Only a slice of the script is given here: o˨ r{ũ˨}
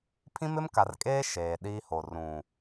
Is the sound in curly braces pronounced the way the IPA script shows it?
yes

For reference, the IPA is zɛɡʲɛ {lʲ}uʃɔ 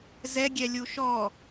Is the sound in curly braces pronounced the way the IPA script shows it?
yes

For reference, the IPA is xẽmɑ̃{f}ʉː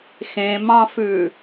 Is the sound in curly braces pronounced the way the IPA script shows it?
yes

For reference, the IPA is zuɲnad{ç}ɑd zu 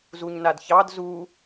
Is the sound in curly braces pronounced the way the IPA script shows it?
yes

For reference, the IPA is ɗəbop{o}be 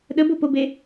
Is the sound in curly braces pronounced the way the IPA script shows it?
yes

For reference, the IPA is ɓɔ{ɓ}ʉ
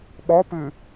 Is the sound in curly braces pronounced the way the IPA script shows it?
no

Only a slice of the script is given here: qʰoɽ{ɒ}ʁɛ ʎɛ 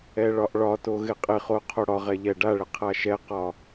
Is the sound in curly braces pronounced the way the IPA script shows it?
yes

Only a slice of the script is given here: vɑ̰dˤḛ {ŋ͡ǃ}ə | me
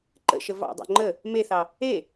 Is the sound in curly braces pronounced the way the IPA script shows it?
yes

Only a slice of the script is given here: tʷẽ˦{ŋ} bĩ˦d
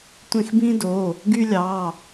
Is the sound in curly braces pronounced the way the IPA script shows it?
no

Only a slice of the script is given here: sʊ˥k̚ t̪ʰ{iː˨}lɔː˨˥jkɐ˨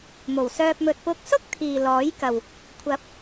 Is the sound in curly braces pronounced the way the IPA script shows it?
yes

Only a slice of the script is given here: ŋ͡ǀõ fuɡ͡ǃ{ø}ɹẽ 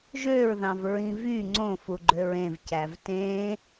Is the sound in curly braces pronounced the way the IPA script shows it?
yes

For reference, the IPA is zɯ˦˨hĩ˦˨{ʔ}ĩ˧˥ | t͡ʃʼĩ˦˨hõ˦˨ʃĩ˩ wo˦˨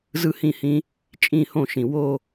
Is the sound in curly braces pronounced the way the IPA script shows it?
no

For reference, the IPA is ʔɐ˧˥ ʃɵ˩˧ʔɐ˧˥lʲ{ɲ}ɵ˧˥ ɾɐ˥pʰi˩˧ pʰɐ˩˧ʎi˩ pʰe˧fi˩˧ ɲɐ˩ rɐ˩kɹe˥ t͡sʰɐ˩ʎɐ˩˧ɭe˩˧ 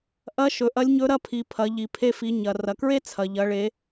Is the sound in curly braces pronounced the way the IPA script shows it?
yes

